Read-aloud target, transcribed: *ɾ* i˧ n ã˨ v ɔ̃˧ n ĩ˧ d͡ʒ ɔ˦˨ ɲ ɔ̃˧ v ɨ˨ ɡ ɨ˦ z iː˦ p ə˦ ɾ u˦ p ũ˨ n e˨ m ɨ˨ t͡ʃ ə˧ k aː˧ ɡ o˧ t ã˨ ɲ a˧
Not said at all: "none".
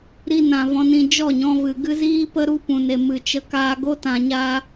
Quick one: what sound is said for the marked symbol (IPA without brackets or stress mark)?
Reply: ɾ